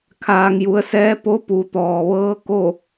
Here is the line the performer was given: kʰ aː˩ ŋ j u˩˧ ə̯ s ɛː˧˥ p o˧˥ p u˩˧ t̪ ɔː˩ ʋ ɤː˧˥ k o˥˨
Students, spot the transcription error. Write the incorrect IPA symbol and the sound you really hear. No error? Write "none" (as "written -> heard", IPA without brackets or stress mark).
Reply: none